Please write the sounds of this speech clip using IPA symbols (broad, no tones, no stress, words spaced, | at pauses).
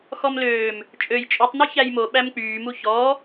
xɔmløːm | t͡ʃʼøj t͡ʃʼytˤny çæjmo ɓæmk͡pyːmu çɔ